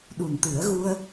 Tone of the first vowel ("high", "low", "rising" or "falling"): low